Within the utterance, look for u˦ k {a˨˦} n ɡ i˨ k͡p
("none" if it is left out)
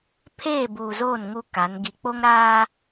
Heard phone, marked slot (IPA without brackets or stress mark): a˨˦